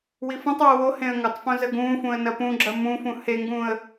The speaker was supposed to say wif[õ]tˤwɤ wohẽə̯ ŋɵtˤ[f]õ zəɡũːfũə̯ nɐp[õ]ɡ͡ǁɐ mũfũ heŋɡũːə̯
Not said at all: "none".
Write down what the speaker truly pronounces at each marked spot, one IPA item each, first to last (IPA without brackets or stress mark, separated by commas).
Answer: õ, f, ũ